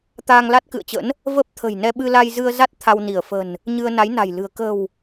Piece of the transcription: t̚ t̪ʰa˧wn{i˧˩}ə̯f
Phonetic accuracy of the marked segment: correct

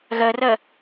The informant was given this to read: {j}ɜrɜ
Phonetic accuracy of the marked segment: incorrect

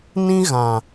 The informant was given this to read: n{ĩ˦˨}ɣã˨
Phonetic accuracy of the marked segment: incorrect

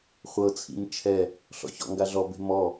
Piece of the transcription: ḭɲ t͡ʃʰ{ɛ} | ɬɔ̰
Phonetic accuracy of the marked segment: correct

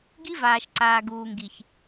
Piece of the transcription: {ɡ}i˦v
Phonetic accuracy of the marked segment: correct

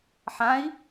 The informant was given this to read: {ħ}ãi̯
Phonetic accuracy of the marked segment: correct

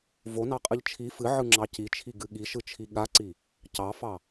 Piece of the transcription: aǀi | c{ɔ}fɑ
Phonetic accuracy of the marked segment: incorrect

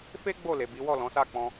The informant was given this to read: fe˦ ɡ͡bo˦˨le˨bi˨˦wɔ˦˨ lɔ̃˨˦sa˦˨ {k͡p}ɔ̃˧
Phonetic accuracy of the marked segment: correct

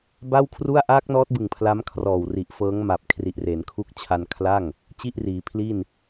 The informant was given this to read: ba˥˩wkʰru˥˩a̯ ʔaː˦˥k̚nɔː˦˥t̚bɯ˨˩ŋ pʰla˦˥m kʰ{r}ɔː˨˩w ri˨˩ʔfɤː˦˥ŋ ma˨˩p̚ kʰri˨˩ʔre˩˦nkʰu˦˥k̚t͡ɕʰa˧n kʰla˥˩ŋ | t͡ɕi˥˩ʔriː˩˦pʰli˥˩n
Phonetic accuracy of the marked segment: correct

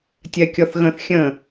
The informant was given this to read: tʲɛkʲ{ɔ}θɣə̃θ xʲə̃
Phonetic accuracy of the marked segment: correct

